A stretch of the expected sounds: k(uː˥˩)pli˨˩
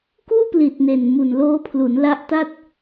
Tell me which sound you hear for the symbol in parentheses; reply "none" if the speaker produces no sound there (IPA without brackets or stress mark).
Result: uː˥˩